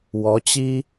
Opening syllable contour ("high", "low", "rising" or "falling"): rising